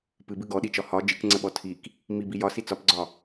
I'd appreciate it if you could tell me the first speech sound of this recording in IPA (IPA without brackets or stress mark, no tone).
p